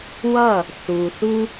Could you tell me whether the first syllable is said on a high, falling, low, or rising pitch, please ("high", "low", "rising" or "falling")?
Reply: falling